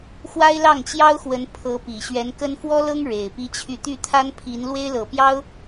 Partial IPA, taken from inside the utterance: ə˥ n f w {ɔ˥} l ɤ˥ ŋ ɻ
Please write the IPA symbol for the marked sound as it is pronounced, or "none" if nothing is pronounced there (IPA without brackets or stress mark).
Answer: ɔ˥